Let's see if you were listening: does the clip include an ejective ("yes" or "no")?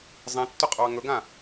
yes